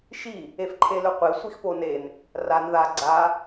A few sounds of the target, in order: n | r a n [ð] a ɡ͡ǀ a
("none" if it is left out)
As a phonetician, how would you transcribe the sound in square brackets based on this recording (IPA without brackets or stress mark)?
ð